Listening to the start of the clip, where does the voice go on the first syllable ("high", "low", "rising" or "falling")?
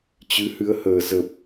rising